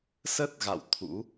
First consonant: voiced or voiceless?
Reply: voiceless